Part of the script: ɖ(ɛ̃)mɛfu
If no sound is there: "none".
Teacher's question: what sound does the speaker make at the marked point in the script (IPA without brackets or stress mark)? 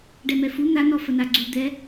ɛ